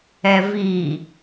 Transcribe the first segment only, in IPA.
ɛ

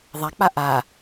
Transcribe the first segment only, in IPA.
ðˤ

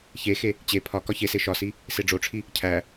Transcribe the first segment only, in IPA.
ç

